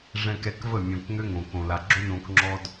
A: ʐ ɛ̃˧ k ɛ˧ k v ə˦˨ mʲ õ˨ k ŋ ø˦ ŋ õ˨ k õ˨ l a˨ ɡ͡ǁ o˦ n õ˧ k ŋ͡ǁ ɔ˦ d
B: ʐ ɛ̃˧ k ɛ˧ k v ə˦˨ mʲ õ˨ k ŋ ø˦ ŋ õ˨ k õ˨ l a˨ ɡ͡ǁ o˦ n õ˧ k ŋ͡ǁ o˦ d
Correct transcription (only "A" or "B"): A